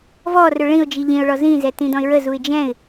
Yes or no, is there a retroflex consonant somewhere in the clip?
yes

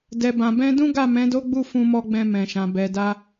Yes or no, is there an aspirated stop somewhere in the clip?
no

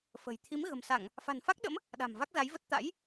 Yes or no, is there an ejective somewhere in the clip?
no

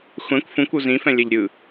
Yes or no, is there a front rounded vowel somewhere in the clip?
no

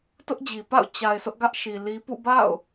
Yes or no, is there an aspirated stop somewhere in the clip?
no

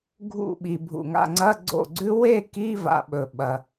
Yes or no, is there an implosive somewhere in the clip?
yes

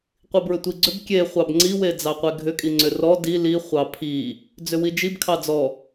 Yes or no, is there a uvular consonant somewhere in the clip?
yes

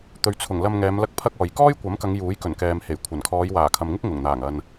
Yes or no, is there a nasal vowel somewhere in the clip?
no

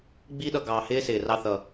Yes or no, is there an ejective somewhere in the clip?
no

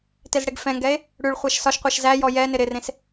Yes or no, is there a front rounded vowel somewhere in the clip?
no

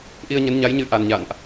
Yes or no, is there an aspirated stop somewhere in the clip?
no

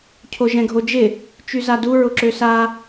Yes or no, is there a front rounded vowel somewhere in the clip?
yes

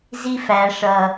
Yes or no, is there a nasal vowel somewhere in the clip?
no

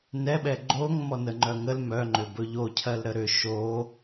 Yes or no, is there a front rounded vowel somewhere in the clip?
yes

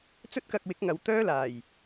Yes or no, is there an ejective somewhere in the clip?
no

